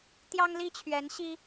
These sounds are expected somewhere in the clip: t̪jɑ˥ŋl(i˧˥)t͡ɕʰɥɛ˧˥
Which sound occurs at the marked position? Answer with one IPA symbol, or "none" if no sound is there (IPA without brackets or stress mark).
i˥